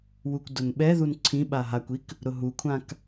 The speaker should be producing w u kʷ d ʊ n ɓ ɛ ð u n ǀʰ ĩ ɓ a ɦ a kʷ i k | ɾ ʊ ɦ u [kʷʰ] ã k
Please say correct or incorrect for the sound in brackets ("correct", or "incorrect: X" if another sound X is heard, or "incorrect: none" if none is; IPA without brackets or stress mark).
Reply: correct